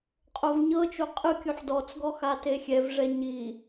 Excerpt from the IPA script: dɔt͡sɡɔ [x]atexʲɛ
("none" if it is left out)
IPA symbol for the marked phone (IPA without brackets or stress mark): x